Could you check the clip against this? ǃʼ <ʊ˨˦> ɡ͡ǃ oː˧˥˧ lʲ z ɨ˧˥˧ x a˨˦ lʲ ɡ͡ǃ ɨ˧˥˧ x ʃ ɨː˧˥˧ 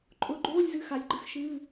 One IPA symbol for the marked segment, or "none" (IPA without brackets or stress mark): ʊ˨˦